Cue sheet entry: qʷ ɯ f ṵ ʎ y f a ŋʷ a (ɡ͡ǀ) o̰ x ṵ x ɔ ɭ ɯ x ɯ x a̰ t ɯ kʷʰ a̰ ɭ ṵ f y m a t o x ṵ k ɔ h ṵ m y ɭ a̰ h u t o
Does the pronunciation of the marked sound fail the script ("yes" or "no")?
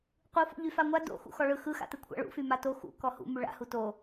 yes